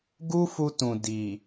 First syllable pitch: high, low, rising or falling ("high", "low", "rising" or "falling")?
high